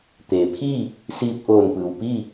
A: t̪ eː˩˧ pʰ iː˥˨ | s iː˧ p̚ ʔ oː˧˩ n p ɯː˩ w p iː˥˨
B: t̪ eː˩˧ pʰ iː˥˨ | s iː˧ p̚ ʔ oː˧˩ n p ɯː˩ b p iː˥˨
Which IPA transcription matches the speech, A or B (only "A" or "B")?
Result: A